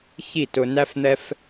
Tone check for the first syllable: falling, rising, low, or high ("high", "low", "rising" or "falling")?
falling